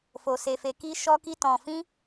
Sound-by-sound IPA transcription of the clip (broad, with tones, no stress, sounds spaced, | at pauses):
f o˨ s e˨ f e˨ k i˧ ʃ ɔ˧ k i˧ t ɔ̃˨ f ĩ˧